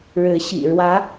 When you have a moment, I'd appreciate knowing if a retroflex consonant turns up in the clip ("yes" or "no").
yes